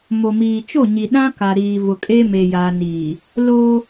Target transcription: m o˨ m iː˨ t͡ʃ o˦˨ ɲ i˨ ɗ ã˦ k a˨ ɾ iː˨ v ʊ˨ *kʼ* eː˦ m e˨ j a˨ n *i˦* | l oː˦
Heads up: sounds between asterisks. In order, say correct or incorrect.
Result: correct, incorrect: i˨

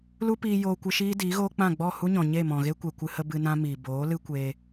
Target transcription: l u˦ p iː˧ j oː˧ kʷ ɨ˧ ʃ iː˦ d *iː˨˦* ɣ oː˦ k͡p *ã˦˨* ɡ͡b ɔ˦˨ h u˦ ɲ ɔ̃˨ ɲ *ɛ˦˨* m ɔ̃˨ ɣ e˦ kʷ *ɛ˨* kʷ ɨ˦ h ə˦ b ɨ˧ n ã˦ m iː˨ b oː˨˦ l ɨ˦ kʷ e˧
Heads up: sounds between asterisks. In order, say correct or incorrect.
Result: correct, correct, incorrect: e˦˨, correct

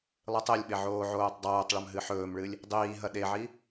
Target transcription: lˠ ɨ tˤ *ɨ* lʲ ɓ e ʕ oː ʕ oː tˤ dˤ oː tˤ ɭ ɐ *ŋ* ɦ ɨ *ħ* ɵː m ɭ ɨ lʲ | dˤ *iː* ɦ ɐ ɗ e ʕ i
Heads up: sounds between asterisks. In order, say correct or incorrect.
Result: incorrect: e, incorrect: m, correct, correct

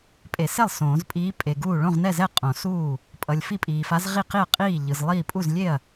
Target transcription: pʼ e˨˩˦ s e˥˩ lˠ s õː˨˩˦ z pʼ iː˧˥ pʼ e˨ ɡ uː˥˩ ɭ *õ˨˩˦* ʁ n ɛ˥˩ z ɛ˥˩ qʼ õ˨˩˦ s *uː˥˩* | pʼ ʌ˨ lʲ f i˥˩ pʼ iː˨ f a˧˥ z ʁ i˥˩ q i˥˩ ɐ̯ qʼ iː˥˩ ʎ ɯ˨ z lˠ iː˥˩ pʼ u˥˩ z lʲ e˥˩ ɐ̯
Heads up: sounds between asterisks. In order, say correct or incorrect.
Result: incorrect: õ˥˩, correct

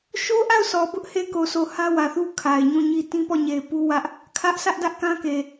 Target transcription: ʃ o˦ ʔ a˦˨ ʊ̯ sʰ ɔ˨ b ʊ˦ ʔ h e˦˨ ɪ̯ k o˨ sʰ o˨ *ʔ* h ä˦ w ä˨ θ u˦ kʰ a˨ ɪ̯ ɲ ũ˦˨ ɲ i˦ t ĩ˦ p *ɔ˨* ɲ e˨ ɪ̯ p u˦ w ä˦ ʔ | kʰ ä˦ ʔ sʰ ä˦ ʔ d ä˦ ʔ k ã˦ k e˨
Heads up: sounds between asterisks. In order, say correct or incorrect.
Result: incorrect: none, incorrect: ɔ˦˨

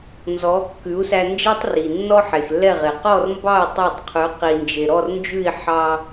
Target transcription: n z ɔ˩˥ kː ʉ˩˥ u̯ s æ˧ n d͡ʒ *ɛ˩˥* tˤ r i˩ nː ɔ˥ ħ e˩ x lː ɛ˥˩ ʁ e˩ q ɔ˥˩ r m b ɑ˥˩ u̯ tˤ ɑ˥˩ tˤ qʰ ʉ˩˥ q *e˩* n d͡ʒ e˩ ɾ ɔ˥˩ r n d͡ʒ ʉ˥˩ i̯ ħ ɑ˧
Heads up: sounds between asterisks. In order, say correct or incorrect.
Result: incorrect: ɛ˥, incorrect: i˩

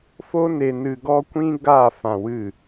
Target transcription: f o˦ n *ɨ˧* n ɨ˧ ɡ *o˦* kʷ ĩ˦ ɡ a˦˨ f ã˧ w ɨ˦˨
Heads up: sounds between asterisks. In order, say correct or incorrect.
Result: incorrect: e˧, incorrect: ɔ˦

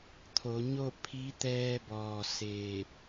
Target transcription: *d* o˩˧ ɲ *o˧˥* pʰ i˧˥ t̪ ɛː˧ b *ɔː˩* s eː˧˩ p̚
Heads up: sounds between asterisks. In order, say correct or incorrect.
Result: incorrect: t̪ʰ, incorrect: o˥˨, correct

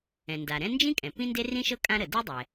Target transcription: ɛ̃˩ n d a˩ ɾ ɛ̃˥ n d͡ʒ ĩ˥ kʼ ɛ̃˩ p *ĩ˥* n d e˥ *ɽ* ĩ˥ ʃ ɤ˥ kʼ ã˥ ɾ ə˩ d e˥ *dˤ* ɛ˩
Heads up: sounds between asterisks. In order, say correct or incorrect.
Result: correct, incorrect: r, correct

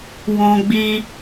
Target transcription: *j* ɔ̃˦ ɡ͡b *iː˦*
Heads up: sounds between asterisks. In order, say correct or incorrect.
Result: incorrect: w, correct

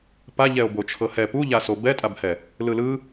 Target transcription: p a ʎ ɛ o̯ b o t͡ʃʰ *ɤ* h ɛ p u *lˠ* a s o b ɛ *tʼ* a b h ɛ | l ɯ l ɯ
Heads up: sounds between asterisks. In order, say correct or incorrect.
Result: correct, incorrect: ʎ, correct

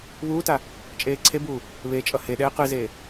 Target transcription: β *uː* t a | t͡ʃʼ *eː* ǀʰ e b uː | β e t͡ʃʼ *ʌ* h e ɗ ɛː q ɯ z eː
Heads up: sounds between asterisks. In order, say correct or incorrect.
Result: correct, correct, correct

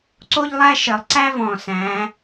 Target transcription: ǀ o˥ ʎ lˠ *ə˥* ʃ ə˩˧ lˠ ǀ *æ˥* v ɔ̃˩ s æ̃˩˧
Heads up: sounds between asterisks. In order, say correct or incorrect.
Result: incorrect: æ˥, correct

